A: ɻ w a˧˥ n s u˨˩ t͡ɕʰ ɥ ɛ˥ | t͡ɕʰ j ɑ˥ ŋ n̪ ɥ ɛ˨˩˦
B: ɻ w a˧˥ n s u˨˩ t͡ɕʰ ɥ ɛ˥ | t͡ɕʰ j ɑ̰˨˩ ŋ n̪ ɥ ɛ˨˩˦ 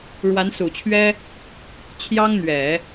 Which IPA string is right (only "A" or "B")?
A